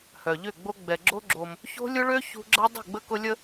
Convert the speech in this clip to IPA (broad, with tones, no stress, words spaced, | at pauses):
hœ˨ʎʏ˦˨ɡ͡bo˦ ɡ͡bɛ˨ɡ͡ǁo˦ ɡ͡ǁo˦m | ço̤˦lʲʊ˦ɭø˦ çṳ˦ ɡ͡ǁɐ˦dˤə̤˦˨ɡ͡bə˦kʊ˦ lʲə˦